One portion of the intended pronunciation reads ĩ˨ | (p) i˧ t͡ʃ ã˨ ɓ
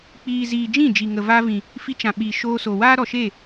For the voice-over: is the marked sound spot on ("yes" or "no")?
no